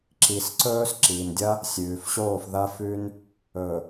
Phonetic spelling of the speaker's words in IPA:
ǁ i˨ s ǀ ɵː˦ s ǁ iː˨ n dʲ ɐ˦ | sʲ ʉː˨ f ɕ oː˦˨ f ð ɐ˦ f ʉ˦ n | ɵ˨

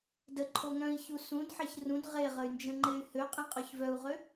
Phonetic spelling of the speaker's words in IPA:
d ə ǃʰ o ŋ œ̃ i̯ ç u s ũ d ħ e ç r ũ d ʁ e ʁ ə y̯ n d͡ʒ ə̃ ŋ͡ǃ e y̯ h ø qʼ ĩ qʼ œ ç v œ u̯ ʁ ø

